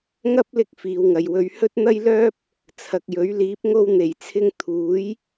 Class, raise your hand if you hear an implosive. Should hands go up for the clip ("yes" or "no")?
no